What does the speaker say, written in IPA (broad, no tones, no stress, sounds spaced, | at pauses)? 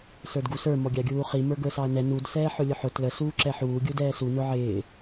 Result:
s ə˞ d ɡ u s ə˞ m ɔ ɡʲ ɑ ɡʲ uː χ i m ə˞ ɡ ə˞ s ɑ ɐ̯ n ɛ n u d s ɛː ħ ʊ lʲ ʊ ħ ʊ t l ə s uː ǁ ɛ ħ uː ɡʲ u d ɛː s u n ʊ ʕ ɪː